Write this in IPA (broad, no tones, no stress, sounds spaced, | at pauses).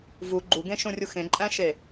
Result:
v u ɡ͡ǃ u ɡ ẽ ʃ ũ rʲ u x ẽ ǃʼ æ̃ ʃ e